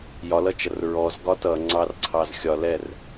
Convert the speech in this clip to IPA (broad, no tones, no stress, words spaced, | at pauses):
jɒlʌt͡ʃʌr ɹɔzɡɒ tʌŋ͡ǀɑrǀʰɑz xʲɒlɛr